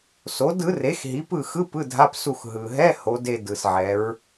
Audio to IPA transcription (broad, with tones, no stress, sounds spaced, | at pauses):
s o˨˥ d ɯ˨˥ r e˨˥ x ɦ i˨˥ p ɯ˦˨ x ɯ˧˥˧ p ɯ˧˥˧ dʱ a˧˥˧ p s u˦˨ x ɦ ɯ˨ ɦ ɛ˧˥˧ h o˨˥ d e˦˨ d ɯ˨ s ʕ ɛ˨˥ ɹ